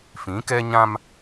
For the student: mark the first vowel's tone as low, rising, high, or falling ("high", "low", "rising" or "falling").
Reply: rising